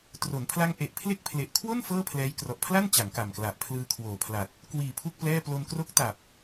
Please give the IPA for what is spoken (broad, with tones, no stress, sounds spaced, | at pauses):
t r o˩˦ n pʰ l a˦˥ ŋ ʔ e˨˩ ʔ pʰ l e˥˩ k̚ pʰ l e˨˩ ʔ kʰ w o˥˩ n f ɤː˥˩ pʰ l ɛː˦˥ j k r ɔ˨˩ ʔ pʰ l a˥˩ n t͡ɕ a˩˦ ŋ k a˨˩ m k l a˨˩ ʔ pʰ l ɯː˧ kʰ w oː˨˩ pʰ l a˨˩ t̚ | k w iː˨˩ pʰ u˥˩ k̚ p l ɛː˥˩ p l o˧ n k r o˦˥ k̚ t a˨˩ p̚